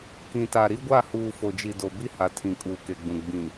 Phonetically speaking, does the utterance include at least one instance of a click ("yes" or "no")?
no